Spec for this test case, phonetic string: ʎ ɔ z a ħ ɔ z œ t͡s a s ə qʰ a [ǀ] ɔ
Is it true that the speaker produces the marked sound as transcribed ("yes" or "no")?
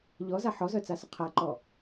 no